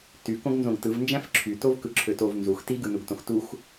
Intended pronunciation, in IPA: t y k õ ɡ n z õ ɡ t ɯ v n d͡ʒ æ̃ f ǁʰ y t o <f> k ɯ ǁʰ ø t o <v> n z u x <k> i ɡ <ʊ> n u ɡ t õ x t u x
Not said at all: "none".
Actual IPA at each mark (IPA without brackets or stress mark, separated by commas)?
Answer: v, v, t, ɯ